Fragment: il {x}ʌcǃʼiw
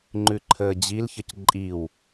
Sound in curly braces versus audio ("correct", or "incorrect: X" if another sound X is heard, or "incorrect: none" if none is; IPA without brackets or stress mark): incorrect: ç